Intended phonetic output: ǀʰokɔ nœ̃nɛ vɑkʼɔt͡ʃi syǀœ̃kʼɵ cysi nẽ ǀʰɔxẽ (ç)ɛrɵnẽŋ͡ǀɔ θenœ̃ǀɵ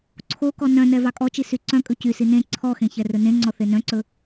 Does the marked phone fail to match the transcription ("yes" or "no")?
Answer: no